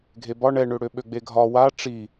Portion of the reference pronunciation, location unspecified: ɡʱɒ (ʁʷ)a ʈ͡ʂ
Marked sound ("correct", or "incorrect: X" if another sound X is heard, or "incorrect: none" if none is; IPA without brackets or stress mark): incorrect: w